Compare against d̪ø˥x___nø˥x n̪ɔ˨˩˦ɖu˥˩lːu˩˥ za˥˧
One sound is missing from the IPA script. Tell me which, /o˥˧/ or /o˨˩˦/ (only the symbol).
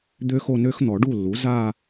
o˥˧